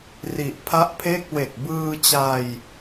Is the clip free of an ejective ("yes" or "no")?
yes